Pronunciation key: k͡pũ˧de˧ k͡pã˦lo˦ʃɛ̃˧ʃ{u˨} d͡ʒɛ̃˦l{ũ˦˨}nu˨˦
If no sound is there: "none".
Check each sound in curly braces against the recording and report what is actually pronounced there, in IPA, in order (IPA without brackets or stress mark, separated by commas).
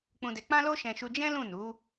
u˧, ũ˦˨